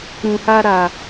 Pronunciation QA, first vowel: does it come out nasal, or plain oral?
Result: nasal